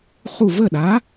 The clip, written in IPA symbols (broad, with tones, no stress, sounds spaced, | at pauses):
χ u˥˩ v ə˥˩ ɗ a˨˥